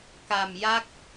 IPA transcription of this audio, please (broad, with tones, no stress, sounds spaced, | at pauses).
k a˧ m j a˦˥ k̚